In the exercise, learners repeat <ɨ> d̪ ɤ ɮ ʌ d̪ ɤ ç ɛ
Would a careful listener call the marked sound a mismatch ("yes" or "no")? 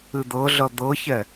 no